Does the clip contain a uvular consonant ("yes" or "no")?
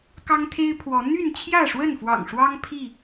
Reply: no